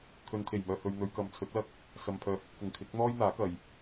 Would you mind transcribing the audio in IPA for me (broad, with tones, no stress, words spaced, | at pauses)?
kʰɵ˨˧nt̪ʰe˨˩jmœː˨ hɵ˧ɥ n̪ɵ˨˧ɥkɐ˨mt͡sʰɵ˨˥t̚ lɐ˥k̚ | sɐ˨mpʰœː˨˧hɪ˧k̚fʊ˨ŋ kʰɪ˨˥k̚n̪ɔː˥jn̪aː˨˥kɐ˨j